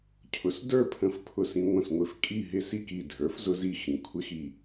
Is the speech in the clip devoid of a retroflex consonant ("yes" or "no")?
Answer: yes